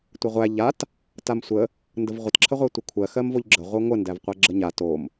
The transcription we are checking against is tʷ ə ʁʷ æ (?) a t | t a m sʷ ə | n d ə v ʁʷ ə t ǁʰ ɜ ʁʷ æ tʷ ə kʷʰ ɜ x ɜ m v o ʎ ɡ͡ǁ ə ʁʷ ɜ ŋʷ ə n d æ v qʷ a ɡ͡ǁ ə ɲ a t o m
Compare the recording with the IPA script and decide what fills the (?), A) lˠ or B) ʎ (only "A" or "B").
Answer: B